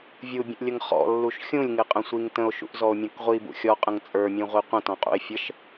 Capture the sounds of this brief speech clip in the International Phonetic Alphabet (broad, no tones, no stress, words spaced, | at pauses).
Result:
vʲubʲə̃ʔlʲəŋ χɔ̰lːuʃ xʲũlʲŋɪqʼə̃sʷiŋ tə̃o̯ʃṵʔzɔo̯mʲɔ̃k ʁʷibṵ xʲɔqʼə̃ŋ t͡sʼə˞mʲũʁʷi qʷə̃tɔ̃qʼṵe̯ fʲəʃ